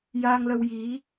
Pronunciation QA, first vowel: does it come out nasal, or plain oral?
oral